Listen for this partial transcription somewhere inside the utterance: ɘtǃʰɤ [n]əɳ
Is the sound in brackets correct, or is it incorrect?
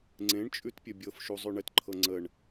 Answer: incorrect